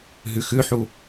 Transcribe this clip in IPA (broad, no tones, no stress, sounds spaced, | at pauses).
ɦ ʉ x ʉ ħ u